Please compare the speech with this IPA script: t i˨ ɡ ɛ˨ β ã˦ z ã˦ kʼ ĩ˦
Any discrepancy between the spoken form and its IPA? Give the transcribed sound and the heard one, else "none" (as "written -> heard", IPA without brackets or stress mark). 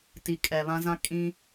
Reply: ɡ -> kʼ